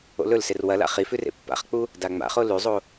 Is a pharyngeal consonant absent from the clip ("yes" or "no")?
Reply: yes